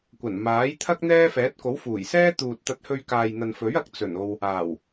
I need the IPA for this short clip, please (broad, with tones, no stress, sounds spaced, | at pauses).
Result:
kʷ ɐ˨˩ n m aː˨˥ j t̪ʰ ɐ˥ k̚ n̪ ɛː˥ f ɛː˨˥ t̚ k o˨˥ w f uː˨˩ j s ɛː˥ t̪ uː˨ t̚ t̪ ɐ˧ t̚ h ɵ˧ ɥ k aː˨ j n̪ ɐ˨ n f ɵ˨˥ ɥ ɐ˨˥ k̚ t͡s ɵ˨˩ n o˨ w | aː˨˩ w